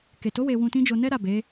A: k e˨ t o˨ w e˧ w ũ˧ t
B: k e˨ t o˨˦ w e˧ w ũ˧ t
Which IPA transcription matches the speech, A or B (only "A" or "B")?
B